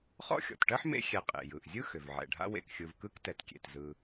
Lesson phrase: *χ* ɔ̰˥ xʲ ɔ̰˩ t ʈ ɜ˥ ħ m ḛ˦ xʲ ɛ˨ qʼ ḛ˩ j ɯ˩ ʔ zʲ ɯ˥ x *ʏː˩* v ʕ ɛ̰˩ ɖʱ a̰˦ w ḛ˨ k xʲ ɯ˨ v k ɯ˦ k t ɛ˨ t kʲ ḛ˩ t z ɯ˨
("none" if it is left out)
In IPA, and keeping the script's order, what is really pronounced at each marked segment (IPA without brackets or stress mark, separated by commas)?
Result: χ, ʏ˩